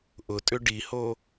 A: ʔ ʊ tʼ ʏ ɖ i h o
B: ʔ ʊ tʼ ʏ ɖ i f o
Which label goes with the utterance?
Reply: A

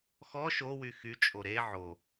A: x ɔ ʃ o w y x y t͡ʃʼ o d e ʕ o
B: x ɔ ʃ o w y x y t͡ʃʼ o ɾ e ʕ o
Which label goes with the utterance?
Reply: B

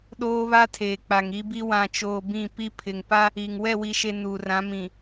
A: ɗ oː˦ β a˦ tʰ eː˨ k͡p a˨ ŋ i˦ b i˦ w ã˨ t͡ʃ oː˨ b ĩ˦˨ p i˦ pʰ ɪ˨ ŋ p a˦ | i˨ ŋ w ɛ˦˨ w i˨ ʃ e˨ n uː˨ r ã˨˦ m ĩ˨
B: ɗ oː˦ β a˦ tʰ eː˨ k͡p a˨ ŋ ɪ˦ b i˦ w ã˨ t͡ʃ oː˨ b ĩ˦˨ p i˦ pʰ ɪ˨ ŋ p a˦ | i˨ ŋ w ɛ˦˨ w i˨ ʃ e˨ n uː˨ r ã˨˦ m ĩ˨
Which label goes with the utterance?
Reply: A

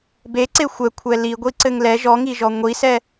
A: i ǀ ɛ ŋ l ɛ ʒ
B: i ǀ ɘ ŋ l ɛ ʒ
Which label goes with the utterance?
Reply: B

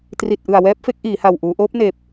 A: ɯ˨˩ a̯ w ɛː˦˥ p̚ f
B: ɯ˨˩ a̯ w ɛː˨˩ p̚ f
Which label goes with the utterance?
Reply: A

